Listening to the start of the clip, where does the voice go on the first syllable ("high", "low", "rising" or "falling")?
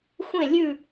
falling